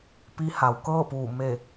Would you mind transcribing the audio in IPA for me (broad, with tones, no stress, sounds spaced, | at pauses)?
p i˧˥ h a˩ w k ɤː˥˨ p uː˧˩ m e˧˩